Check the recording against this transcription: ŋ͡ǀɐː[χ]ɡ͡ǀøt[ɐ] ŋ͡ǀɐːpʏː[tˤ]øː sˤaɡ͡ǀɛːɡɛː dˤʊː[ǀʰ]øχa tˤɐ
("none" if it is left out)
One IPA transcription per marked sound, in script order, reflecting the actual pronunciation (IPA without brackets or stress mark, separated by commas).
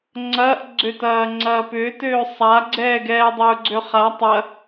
ʔ, ɐː, t, ɡ͡ǀ